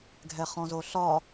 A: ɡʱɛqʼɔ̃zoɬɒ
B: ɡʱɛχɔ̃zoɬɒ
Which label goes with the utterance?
B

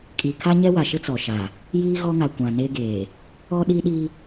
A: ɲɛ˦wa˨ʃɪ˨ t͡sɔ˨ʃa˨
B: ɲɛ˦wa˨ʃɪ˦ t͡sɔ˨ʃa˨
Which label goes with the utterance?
B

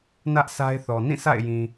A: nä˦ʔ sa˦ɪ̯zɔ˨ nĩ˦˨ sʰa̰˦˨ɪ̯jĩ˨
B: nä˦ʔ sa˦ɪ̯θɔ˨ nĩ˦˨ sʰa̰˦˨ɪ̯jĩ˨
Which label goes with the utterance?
B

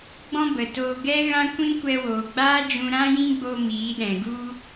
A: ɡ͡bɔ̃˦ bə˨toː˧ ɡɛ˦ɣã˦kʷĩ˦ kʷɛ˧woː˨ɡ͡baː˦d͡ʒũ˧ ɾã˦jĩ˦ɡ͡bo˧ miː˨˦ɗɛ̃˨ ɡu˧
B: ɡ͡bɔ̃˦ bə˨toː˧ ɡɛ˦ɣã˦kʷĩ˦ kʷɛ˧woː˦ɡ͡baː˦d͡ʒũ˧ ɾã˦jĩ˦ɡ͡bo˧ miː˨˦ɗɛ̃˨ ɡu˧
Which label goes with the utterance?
A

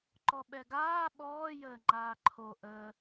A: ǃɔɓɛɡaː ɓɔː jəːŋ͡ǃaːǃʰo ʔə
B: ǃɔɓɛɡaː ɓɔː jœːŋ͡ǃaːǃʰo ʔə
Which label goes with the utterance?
A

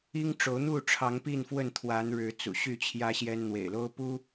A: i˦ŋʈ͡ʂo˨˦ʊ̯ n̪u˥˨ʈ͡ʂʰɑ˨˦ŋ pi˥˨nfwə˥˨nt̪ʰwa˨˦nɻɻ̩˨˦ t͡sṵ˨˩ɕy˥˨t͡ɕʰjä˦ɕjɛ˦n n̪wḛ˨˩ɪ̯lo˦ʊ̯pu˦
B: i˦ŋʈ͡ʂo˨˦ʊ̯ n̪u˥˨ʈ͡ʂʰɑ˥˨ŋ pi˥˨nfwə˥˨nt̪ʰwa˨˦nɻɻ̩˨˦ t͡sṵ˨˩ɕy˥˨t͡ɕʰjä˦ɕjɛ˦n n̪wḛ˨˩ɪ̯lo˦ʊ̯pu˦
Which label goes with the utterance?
A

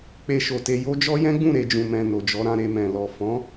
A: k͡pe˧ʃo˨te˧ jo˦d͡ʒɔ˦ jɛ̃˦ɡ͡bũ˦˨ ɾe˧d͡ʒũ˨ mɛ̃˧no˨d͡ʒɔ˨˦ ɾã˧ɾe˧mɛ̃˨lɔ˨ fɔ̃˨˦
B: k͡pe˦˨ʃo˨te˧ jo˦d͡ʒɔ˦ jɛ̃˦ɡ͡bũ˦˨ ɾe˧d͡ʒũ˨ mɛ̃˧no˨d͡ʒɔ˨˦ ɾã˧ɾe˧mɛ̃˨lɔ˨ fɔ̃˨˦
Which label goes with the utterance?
A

